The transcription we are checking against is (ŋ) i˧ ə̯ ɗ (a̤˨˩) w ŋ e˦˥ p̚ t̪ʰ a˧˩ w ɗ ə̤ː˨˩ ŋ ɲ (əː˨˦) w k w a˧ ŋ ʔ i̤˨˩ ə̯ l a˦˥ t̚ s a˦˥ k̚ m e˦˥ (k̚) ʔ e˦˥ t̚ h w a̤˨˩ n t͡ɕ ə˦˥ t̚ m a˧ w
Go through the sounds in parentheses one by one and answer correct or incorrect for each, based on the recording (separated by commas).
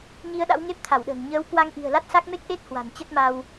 incorrect, incorrect, correct, correct